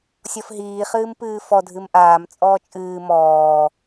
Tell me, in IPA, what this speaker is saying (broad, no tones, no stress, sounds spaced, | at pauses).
sʲ ɔ f ɦ iː χ ɨː m p ɨː f ɔ dʱ ɨ m ʔ aː m t͡sʼ ɔː t͡ʃʼ ɨː m ɔː